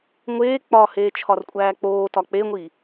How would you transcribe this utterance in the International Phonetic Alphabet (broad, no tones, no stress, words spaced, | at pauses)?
ŋʷeː k͡pɒheːt͡ʃʰɒrkʷʼæː k͡poːtɒ k͡peŋʷiː